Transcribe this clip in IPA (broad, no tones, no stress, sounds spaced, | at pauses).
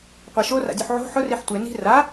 qʷ e ʃ o r a̰ dʲ u ħ ʕ o̤ ħ ʊ r i ħ tʷ e n i̤ r a